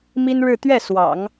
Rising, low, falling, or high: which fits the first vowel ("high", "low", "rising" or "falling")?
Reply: high